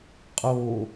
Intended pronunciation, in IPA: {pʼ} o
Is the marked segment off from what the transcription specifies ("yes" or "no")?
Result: yes